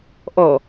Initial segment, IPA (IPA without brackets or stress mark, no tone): ʔ